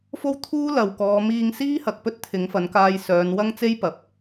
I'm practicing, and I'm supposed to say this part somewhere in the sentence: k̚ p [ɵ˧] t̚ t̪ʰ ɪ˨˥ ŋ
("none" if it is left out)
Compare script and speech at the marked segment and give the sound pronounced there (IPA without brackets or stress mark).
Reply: ɵ˥